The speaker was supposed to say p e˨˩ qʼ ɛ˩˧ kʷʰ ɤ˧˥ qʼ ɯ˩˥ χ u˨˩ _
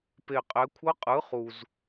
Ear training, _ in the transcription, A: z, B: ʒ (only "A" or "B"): A